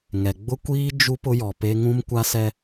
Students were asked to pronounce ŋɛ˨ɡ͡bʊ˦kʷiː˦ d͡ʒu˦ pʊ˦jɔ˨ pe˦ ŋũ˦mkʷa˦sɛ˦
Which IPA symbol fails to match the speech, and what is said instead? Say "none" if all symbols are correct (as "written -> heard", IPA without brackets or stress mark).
none